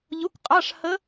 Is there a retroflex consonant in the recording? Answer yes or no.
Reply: yes